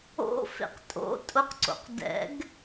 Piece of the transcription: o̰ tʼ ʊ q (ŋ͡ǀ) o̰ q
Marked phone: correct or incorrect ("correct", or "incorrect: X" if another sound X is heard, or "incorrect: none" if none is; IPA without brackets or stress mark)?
incorrect: ǀ